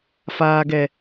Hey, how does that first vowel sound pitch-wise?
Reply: low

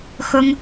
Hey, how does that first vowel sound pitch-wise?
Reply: high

